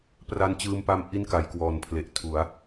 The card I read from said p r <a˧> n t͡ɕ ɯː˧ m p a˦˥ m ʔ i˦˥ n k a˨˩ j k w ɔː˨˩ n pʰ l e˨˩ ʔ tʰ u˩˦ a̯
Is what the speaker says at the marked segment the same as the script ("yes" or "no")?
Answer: yes